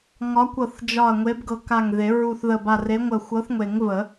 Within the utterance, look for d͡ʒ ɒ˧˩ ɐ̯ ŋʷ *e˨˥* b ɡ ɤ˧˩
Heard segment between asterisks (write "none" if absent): e˨˥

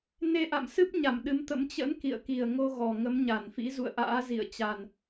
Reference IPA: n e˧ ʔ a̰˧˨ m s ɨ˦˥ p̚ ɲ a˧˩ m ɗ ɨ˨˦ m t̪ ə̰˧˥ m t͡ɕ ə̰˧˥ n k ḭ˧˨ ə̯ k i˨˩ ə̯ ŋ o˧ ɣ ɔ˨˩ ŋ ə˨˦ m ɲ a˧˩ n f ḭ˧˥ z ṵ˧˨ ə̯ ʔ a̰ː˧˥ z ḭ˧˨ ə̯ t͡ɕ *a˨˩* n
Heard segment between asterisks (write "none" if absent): a˨˩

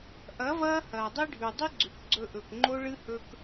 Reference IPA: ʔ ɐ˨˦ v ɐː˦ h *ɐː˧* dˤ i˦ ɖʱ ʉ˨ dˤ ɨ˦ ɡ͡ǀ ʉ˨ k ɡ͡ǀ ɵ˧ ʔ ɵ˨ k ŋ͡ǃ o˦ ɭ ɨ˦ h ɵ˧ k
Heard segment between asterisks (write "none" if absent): ɐː˨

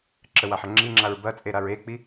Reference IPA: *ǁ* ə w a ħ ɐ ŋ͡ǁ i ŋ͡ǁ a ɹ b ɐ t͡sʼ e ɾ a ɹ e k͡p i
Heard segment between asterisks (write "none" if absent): ǁ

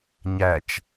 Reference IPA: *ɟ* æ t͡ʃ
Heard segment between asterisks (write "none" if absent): ɲ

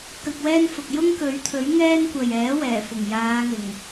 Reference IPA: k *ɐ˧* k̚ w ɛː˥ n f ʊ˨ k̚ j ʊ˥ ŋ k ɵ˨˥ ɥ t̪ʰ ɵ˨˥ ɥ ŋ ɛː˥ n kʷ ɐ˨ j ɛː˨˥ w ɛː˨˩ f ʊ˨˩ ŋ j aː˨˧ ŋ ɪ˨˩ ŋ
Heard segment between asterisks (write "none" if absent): ɐ˧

